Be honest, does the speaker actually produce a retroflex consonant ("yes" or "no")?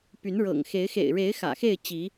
yes